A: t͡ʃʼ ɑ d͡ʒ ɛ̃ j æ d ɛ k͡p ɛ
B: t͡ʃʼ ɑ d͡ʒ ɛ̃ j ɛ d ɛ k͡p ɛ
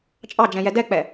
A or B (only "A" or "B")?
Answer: B